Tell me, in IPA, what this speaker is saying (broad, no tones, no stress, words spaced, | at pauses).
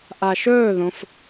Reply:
ʔaʃɵːðõf